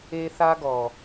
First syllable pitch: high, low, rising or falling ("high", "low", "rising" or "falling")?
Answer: high